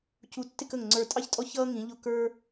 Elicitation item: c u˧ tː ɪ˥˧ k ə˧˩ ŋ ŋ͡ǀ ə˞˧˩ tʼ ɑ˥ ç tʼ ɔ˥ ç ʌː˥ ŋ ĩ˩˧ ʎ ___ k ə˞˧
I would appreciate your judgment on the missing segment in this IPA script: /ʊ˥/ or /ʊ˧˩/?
ʊ˧˩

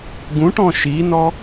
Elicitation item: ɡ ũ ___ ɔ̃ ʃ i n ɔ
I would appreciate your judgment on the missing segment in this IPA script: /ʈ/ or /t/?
ʈ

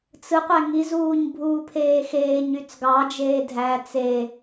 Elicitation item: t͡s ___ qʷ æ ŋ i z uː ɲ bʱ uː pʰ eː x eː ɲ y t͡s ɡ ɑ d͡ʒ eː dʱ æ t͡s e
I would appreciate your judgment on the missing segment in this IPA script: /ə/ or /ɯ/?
ɯ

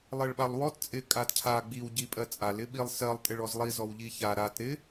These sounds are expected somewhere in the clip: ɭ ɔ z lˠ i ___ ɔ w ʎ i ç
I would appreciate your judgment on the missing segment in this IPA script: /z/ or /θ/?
z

